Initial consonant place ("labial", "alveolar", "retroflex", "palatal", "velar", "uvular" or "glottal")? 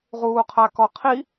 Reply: uvular